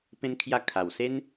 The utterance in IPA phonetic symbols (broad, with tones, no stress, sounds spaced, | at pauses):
p ẽ˧ n kʰ j a˧ kʰ a˨˩ w s e˦ n